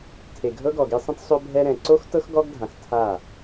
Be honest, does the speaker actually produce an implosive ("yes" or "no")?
no